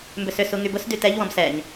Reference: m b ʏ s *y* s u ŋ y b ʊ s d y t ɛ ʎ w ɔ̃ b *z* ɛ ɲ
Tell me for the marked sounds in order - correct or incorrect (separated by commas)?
incorrect, incorrect